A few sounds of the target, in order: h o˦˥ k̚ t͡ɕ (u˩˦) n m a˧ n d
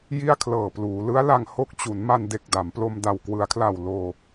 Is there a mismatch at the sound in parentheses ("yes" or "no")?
no